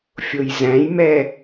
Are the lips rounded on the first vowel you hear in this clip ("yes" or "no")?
yes